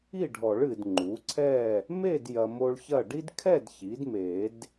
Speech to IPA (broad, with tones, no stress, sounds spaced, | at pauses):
i˥˨ ɖʱ ɔ˨˩˦ ɭ ɨ˨ d ŋ͡ǃ u˩˥ ǀʰ ɛ˥˨ | m e˥˨ d j ɐ˨ m o˦ ɭ ç ɐ˥˨ ɖ i˦ d kʰ ɛ˥˨ d ç i˩˥ d m e˨˩˦ d